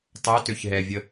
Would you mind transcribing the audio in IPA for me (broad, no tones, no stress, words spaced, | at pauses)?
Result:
tˤøtøçɦɛvʲə